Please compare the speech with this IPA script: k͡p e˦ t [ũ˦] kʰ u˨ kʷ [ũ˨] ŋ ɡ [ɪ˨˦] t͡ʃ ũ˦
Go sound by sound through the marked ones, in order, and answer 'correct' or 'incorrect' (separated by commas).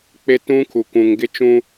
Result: correct, correct, incorrect